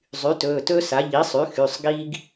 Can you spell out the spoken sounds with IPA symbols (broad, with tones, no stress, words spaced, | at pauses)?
zˤy˩˥tɵː˩˧˩tɵː˥sa˩˥ ʎi˩˥sˤy˩˥ xy˩˧˩sˤ ɡi˥ɡ